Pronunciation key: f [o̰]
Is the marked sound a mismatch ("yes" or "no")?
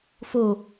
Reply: yes